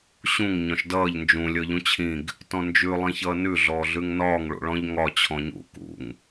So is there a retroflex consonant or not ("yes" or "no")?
yes